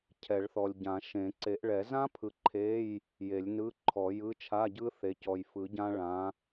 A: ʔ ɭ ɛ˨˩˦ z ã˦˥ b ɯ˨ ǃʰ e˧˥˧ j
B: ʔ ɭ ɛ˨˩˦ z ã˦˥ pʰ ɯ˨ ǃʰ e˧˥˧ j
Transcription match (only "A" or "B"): B